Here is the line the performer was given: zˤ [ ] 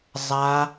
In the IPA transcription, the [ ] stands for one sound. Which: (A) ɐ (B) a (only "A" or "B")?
B